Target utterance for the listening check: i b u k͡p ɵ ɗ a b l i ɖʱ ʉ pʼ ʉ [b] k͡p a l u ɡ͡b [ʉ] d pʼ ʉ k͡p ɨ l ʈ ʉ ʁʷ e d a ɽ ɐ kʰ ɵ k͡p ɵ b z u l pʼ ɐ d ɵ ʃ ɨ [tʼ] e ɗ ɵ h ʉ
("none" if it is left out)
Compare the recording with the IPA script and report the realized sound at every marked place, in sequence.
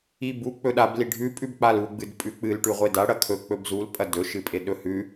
b, ɨ, pʼ

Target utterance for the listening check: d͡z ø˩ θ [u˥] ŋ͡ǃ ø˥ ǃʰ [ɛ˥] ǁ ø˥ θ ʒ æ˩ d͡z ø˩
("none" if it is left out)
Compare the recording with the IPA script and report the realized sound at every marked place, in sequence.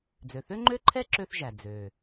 ø˥, ɛ˥

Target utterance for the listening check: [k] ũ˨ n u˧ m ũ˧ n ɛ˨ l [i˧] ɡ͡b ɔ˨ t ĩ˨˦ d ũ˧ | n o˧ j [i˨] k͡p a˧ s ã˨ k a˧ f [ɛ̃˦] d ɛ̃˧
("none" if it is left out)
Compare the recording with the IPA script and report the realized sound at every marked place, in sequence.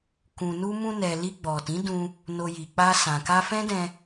k, i˧, i˨, ɛ̃˦

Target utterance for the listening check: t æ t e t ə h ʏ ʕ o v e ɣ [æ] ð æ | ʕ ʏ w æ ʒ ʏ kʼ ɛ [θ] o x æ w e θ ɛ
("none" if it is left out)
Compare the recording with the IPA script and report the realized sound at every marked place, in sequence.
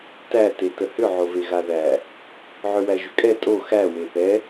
a, tʼ

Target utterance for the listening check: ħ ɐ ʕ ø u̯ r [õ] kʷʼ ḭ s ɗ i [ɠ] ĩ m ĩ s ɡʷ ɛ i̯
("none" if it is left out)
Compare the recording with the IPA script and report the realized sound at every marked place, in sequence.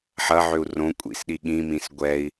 õ, ɠ

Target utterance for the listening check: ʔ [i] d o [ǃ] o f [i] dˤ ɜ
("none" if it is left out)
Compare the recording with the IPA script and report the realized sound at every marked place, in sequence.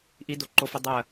i, ǃ, i

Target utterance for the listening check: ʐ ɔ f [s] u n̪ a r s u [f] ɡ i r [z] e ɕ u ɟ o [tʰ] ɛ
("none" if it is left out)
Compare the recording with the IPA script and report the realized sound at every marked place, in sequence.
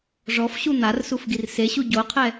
ɕ, f, s, qʰ

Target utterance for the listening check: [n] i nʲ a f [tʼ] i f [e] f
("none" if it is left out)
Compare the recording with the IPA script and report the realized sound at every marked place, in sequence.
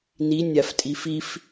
n, tʼ, i

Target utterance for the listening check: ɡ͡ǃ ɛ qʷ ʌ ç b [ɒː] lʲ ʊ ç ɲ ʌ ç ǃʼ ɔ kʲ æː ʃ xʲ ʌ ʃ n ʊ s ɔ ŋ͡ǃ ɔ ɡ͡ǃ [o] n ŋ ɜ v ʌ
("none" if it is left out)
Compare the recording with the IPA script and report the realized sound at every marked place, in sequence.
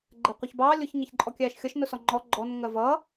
ɑː, ɔ

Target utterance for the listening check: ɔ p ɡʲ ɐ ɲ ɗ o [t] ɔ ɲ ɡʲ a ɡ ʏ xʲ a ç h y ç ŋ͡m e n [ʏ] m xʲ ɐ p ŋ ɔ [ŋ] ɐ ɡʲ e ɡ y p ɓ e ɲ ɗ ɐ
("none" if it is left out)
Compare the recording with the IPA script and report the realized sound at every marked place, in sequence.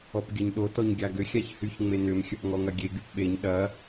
t, ʏ, ŋ

